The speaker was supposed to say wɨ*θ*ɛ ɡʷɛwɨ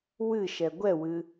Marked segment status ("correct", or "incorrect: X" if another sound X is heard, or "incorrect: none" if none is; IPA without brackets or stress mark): incorrect: ʃ